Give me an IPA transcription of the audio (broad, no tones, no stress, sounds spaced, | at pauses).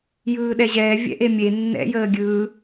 j ɯː ɗ ɛ ʑ ɛː vʲ ɛ̰ ʔ e mʲ e nː ɛ̰ j əː ɡʲ ɯː